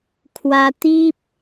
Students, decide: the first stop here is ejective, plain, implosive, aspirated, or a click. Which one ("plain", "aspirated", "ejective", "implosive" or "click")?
aspirated